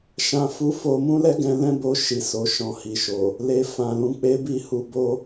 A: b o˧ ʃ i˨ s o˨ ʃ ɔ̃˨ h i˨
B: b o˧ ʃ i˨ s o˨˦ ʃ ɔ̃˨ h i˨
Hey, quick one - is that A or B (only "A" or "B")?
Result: A